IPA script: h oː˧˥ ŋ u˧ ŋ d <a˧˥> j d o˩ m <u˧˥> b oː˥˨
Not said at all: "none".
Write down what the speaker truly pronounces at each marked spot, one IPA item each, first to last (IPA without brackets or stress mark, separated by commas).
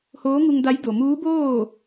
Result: a˧˥, uː˧˥